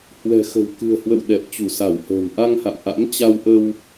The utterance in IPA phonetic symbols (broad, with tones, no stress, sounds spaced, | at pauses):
h w ɛ̤˨˩ x ə̤˨˩ w k ɨ̤˨˩ ə̯ h w ə̰˧˨ w ɗ ɛ˨˩ p̚ t͡ɕ u˧˩ s a˧˩ w h ə̤ː˨˩ m ʔ a˧ ŋ h a̰˧˨ m ʔ a̰˧˥ m t͡ɕ a˧ w ʔ ə˧ w